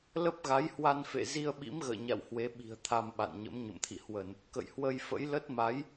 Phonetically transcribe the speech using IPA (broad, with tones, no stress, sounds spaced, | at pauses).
l ə˦˥ p̚ ɣ a˨˦ j h w a˧ n f ḛ˧˨ z i˧ ə̯ ɓ ḭ˧˥ m ɣ ə̰ː˧˨ ɲ a̰˧˨ w h w e˨˦ ɓ i̤˨˩ ə̯ t̪ʰ a˧ m ɓ a̰˧˨ n ɲ ə̰˧˥ m ɲ ə̰˧˨ m t̪ʰ ḭ˧˨ h w ə˧˩˨ n | k ə̰˧˨ j h w ə˧ j f ə̰˧˥ j l ə˦˥ t̚ m a˨˦ j